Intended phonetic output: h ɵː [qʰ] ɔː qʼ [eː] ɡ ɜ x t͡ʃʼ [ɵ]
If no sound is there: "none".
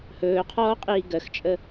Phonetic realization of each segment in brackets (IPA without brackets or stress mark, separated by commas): qʰ, iː, ə